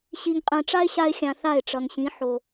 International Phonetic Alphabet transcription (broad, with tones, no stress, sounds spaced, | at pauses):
ɕ i˨ ŋ qʼ ɛ̃˨ ʈ͡ʂ a˦ ɪ̯ ɕ a˧ ɪ̯ xʲ ã˨ θ a˦˨ ɪ̯ ʈ͡ʂ ʌ˨ ŋ ɕ ĩ˨˦ ħ o˨